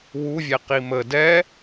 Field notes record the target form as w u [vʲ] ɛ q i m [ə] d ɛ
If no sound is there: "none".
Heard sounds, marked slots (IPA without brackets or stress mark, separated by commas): vʲ, ə